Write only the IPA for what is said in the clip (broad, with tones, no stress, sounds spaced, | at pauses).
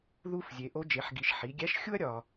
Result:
ð u˧ f zʲ e˩˧ ʔ o˧˥ d͡ʒ e˩˧ ħ ɡ i˩˧ ʃ ħ i˩˧ ɡʲ æ˧˥ ʃ xʲ u˥ ɐ̯ ɾʲ ɒ˩